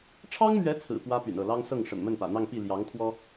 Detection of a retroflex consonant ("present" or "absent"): present